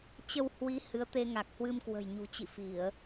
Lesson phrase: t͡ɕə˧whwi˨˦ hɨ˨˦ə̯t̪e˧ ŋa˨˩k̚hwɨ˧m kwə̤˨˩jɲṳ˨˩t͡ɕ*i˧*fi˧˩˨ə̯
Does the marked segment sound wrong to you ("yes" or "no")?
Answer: yes